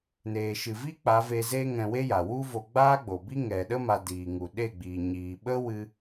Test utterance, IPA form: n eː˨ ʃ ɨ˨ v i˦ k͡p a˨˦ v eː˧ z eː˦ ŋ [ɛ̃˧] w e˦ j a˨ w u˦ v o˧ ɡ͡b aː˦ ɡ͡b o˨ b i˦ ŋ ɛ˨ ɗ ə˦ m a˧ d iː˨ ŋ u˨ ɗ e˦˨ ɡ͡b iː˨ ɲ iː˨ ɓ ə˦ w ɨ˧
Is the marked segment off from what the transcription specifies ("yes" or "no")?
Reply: no